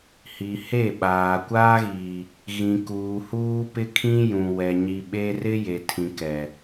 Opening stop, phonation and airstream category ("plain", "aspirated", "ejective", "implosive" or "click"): implosive